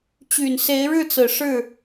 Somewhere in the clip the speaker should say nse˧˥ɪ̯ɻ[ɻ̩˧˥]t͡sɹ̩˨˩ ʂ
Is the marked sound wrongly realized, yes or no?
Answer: yes